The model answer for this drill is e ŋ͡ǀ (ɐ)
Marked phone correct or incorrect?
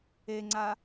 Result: incorrect: a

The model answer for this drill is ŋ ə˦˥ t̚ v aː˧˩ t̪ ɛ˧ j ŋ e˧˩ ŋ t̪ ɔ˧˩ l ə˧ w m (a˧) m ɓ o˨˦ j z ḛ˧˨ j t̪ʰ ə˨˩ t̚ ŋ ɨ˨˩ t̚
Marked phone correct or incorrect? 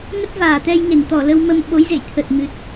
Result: incorrect: ə˧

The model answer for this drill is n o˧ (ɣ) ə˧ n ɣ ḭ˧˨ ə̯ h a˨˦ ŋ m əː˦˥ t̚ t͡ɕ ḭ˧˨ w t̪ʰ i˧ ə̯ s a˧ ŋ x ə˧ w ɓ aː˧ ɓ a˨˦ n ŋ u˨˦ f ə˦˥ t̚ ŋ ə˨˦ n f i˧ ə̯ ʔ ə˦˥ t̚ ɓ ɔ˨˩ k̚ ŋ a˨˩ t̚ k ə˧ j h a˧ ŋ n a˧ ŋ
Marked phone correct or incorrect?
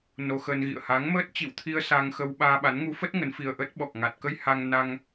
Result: incorrect: x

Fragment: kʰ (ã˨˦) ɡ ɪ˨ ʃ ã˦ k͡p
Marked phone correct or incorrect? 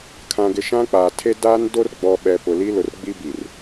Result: incorrect: ã˨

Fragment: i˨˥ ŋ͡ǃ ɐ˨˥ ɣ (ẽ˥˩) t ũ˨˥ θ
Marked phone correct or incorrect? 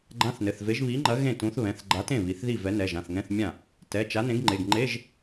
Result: correct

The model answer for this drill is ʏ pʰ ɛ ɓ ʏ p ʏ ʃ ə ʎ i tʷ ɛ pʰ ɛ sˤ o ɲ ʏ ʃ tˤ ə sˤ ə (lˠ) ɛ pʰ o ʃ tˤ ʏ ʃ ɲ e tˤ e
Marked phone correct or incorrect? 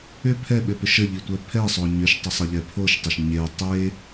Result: incorrect: ʎ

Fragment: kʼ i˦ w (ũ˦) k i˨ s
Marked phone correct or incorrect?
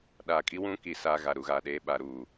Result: correct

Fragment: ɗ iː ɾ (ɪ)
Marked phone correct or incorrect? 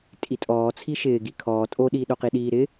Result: correct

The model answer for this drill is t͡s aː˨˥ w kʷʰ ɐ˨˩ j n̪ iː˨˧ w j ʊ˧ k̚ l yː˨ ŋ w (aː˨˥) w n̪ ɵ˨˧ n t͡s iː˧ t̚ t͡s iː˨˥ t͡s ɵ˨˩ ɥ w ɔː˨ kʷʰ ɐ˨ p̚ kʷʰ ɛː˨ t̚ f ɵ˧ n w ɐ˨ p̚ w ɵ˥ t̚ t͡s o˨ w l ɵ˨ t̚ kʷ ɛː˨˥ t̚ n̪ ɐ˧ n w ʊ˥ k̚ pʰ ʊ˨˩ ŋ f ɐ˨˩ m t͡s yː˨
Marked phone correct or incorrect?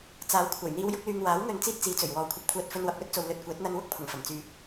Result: correct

